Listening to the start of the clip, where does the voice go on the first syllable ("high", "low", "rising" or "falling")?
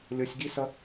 high